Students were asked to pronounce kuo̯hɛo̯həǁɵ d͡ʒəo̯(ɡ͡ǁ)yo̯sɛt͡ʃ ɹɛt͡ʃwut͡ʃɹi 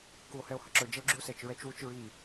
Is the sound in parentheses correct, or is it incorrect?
correct